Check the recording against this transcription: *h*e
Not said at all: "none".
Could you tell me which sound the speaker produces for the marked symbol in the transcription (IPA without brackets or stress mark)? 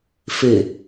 f